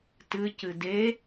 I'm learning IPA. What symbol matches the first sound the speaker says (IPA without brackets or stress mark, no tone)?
t